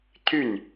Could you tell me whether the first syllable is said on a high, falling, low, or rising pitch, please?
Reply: falling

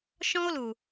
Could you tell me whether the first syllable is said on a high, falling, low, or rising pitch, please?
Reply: high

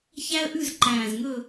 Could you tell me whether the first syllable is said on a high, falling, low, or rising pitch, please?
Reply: high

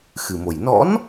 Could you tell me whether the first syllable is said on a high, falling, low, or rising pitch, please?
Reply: low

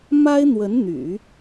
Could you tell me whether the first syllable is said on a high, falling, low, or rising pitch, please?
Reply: high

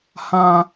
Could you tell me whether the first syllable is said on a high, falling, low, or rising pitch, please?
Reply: high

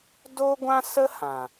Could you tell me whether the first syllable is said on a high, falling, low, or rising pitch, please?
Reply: high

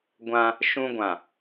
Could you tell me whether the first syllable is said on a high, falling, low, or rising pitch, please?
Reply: high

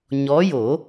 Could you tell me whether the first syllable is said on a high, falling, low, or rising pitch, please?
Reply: rising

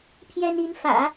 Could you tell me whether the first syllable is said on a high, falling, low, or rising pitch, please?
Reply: high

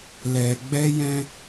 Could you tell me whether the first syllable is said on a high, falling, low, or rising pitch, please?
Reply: low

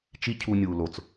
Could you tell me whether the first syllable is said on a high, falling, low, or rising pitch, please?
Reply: high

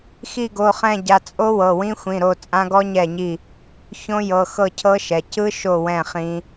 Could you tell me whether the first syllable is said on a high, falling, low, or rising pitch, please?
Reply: falling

